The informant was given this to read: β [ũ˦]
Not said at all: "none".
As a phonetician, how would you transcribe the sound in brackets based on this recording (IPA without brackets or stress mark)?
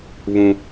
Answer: ũ˦